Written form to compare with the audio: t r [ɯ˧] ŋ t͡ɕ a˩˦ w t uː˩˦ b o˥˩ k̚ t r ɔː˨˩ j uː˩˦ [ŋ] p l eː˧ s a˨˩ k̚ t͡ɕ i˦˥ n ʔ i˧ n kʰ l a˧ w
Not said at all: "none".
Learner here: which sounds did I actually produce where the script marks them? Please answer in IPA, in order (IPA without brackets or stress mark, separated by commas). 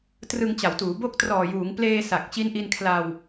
ɯ˧, ŋ